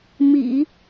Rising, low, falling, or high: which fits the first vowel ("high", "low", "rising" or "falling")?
low